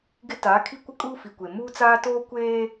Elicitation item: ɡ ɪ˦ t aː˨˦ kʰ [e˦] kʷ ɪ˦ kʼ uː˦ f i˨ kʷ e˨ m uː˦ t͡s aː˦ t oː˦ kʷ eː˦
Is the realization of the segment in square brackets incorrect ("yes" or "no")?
yes